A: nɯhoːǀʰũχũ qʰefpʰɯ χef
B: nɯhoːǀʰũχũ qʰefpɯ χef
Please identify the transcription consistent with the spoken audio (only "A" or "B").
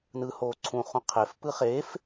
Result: B